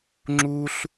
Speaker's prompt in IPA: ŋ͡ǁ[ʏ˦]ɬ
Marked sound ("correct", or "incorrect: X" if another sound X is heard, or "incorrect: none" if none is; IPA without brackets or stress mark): incorrect: u˦